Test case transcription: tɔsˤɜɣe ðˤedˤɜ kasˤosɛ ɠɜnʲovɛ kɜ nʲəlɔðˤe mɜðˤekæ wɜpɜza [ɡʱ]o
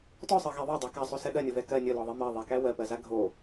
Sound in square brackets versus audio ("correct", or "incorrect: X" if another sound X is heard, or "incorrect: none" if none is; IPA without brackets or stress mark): correct